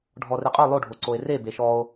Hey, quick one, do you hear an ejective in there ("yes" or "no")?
yes